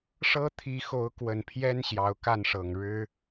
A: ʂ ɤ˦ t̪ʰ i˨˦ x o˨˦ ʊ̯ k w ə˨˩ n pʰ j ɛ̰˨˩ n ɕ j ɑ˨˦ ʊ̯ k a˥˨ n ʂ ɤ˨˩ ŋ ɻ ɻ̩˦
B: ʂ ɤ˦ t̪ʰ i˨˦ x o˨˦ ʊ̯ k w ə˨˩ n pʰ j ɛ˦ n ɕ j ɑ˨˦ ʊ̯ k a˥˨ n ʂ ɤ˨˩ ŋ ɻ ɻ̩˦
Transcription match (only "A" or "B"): B